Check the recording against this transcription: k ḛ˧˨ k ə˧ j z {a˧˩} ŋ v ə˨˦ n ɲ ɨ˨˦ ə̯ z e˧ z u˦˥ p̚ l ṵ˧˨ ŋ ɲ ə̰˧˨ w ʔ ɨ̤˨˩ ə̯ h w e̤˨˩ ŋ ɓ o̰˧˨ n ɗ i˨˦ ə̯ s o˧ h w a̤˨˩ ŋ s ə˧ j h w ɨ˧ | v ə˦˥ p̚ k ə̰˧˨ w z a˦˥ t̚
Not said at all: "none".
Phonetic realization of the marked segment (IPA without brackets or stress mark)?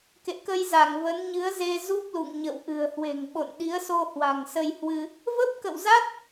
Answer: a˧˩